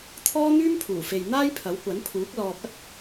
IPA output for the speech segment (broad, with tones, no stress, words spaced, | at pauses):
t̪ʰɔː˥n̪yː˥mpʰuː˨˩fe˨j n̪aː˥jpʰɐ˨˥wkʷɐ˨˥npʰuː˨˥k̚ lɔː˨p̚ɐ˥t̚